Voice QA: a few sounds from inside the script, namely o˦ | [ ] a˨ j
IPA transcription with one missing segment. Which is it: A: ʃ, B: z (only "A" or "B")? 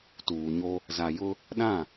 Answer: B